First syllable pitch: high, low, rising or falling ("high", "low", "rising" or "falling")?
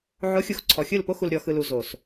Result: rising